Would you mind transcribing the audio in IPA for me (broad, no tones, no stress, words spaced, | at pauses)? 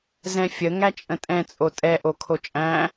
zɛ̃fʲə ŋæt͡ʃʼə̃tʼɛ̃ t͡sʼotʼɛ ʔokʰot͡ʃʼæ̃